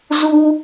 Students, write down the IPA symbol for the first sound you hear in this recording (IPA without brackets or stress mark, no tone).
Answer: z